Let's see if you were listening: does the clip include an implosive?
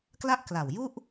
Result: no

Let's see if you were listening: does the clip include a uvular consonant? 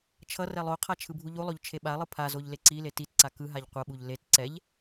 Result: yes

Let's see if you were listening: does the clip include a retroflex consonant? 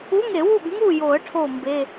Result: yes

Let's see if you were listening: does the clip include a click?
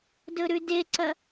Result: yes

